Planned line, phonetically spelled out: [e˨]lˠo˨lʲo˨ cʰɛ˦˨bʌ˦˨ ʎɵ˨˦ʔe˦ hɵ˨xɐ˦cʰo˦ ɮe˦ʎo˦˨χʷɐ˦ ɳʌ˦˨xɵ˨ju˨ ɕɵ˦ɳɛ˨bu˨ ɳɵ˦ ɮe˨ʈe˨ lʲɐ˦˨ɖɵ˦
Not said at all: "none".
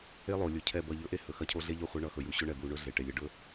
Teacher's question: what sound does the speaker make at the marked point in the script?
e˦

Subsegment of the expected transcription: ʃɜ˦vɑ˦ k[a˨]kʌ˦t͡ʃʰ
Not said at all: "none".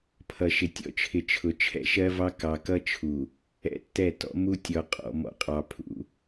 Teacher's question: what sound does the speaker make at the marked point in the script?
ɑ˨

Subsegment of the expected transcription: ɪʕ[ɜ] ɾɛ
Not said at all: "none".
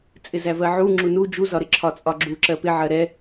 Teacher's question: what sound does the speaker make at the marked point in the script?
ɜ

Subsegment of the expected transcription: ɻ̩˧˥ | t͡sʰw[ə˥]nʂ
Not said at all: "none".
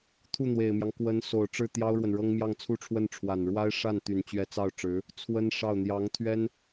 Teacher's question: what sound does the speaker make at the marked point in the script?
ə˥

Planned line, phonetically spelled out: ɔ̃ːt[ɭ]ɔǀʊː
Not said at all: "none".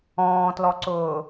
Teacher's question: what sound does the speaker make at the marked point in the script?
l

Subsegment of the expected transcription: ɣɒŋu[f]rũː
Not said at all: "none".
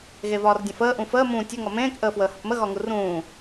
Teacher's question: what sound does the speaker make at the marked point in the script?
none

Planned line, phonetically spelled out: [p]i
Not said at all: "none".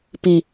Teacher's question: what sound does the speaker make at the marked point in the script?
p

